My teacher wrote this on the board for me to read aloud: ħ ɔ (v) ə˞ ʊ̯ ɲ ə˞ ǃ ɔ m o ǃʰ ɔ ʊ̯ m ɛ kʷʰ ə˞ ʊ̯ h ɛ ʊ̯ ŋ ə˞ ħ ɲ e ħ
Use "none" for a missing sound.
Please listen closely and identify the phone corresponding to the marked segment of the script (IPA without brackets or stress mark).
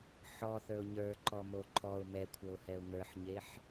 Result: θ